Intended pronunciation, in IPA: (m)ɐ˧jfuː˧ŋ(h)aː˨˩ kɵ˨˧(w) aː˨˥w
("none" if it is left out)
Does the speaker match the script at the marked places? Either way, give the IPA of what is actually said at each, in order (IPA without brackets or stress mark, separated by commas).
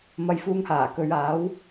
m, h, ɥ